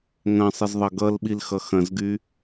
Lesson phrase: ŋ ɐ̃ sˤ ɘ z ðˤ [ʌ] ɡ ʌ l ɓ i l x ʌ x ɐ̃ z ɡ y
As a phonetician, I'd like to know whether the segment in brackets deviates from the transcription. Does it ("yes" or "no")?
no